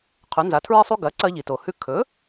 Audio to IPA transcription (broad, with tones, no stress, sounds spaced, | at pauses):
qʰ ʉ˩˥ n z a˩˥ tʰ ɹ i˥ sˤ u˥ ɡ ɐ˩˥ ǀ ɐ˧ ʎ i˩ t o˩ h ʉ˧ kʰ ɵ˩˥